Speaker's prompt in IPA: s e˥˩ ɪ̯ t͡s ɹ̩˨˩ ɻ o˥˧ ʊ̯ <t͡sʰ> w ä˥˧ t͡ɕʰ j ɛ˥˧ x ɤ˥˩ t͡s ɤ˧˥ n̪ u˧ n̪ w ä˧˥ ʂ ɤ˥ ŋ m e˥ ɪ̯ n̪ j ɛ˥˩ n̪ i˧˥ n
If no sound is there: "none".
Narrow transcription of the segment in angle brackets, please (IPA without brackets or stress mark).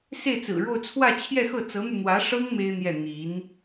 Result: t͡sʰ